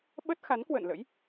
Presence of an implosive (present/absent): present